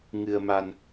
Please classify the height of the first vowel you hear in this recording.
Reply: high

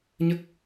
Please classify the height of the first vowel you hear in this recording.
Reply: mid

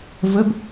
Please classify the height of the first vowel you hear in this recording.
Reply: mid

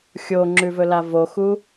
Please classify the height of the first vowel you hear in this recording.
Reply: mid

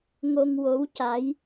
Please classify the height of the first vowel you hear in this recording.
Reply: mid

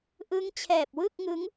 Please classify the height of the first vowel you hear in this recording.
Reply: high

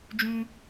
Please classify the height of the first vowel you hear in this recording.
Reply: high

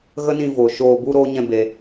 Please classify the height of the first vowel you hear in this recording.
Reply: mid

